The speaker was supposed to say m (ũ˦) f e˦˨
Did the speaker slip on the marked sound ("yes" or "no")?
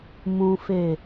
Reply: no